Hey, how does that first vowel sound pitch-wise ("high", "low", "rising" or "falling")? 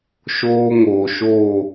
high